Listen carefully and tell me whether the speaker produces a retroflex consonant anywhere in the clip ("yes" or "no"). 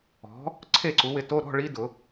yes